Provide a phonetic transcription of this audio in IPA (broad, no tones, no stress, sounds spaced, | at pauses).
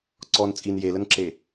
ǀ ɔ n t͡sʼ i n j e l ə n ǁ e